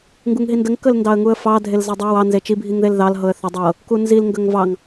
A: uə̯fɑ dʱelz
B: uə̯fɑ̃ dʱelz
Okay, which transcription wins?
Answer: A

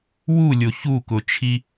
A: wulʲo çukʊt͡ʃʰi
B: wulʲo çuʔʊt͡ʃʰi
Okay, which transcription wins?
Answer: A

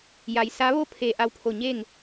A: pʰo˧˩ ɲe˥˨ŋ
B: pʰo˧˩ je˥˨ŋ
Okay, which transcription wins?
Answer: A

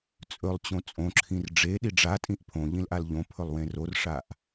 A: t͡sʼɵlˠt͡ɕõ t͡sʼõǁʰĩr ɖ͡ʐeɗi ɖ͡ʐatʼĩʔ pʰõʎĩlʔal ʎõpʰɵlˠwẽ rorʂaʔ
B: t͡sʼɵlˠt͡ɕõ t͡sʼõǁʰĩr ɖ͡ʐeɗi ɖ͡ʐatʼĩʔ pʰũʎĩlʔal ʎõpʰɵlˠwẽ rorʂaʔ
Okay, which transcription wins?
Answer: A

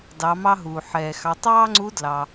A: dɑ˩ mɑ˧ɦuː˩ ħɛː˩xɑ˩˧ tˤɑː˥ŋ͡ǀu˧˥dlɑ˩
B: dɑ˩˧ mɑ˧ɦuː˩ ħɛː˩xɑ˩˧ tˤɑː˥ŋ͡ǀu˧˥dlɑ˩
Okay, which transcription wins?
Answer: B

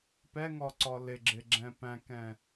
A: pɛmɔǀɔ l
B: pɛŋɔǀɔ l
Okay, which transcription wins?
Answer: B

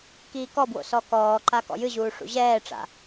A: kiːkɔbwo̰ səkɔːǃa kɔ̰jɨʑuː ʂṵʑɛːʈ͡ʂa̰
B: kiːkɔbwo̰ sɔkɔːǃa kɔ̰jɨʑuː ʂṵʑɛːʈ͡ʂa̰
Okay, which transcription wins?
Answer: B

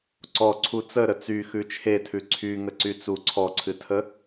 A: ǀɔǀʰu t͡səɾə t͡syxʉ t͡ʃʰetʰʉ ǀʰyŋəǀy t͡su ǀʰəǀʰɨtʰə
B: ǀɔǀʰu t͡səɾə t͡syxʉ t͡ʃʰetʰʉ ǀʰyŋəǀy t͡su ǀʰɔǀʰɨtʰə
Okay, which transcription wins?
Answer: B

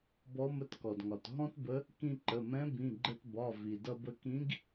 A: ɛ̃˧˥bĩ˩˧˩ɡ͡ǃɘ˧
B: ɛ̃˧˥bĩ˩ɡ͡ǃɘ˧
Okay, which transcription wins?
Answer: A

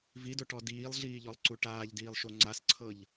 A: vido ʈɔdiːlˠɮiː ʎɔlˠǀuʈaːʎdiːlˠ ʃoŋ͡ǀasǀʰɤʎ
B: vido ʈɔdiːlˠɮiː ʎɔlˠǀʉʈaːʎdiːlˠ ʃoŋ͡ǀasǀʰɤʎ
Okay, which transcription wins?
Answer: A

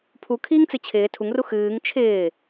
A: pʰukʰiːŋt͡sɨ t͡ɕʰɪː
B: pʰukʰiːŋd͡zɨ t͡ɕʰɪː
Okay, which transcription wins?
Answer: A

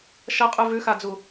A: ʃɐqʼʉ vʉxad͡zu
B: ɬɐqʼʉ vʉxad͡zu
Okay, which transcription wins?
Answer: A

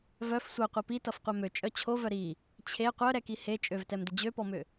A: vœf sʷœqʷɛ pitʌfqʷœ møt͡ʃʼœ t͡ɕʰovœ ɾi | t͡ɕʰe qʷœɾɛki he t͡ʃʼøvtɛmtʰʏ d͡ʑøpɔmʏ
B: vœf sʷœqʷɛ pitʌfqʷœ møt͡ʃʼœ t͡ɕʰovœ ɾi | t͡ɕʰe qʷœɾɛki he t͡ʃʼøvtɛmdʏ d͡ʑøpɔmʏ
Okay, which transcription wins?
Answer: B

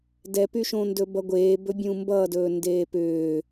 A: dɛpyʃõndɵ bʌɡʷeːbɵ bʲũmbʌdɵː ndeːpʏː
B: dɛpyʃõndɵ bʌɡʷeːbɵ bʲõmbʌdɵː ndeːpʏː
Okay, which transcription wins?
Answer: A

